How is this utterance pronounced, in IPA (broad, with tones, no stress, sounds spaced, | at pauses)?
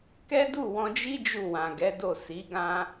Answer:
k ɛ˦ d u˦˨ w ɔ̃˧ d͡ʒ i˦ d͡ʒ u˦˨ w ã˨ ɡ ɛ˨˦ d o˦˨ s i˨˦ ɡ ã˦